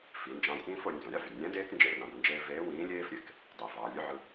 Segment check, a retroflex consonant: absent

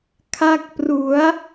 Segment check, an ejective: absent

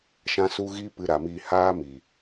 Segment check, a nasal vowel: present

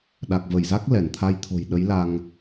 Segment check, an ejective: absent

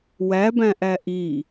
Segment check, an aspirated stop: absent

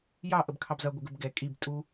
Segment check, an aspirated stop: present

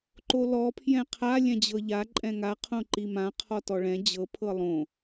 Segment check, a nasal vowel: present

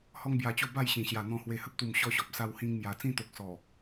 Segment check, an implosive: absent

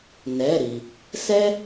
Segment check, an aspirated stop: absent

